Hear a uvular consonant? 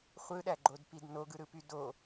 yes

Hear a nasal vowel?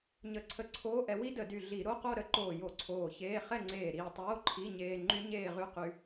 no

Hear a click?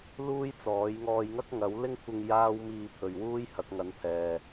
no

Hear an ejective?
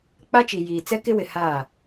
no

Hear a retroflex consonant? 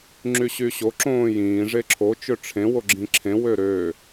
yes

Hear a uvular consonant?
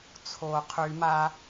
yes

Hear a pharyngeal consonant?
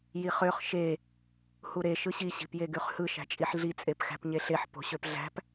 yes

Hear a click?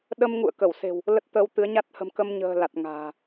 no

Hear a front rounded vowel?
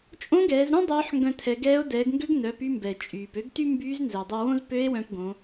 yes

